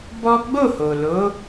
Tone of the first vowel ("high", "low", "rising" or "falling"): high